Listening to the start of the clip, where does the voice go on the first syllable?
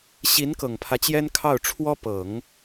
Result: rising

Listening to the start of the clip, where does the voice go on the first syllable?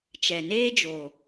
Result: low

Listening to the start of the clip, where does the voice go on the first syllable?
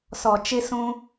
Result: low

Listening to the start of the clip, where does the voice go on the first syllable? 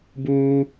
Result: high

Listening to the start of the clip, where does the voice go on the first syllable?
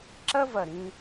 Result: high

